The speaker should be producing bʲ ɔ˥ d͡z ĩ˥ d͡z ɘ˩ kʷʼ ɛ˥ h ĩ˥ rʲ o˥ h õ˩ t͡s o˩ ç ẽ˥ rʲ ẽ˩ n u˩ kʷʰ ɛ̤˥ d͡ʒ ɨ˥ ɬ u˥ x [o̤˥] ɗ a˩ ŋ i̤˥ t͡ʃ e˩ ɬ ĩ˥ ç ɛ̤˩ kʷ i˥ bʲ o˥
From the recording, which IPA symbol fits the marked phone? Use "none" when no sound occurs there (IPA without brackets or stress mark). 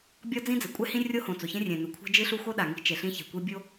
o˥